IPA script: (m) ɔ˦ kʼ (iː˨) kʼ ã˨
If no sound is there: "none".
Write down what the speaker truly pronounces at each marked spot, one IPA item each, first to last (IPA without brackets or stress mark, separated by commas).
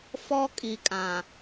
f, i˨